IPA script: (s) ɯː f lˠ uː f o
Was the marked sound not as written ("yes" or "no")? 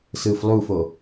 no